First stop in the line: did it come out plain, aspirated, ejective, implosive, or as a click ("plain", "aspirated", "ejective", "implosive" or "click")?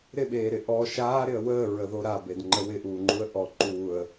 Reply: implosive